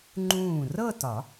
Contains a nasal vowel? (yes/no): yes